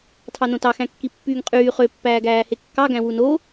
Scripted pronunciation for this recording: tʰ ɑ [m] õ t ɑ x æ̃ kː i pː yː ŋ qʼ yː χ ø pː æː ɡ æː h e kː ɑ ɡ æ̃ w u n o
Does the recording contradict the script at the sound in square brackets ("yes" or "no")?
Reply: yes